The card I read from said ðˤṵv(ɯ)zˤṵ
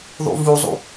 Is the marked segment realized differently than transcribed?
yes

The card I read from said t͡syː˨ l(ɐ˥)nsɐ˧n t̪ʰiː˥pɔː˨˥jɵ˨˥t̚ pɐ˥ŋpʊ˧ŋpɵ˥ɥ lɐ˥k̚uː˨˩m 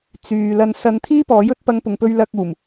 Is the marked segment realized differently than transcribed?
yes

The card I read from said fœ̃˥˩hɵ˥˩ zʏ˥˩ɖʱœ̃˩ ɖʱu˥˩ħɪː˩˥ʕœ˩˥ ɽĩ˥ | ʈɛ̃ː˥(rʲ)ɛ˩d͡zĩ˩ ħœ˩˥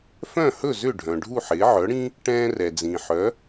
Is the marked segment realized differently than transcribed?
yes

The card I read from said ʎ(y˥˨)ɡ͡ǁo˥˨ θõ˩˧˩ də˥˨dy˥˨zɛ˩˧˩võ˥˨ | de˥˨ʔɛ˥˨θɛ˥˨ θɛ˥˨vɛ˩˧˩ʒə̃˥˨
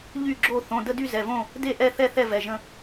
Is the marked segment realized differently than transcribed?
no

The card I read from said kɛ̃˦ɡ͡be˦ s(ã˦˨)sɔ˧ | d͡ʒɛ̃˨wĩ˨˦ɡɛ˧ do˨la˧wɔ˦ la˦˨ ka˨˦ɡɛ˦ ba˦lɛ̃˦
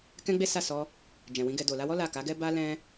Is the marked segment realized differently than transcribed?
yes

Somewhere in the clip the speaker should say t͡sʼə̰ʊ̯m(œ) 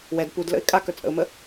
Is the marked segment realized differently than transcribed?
yes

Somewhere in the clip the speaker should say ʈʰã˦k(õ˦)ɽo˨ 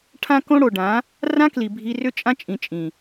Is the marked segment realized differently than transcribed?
no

